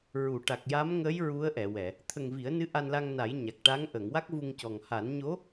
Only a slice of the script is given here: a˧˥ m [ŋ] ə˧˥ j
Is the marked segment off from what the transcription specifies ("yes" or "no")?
no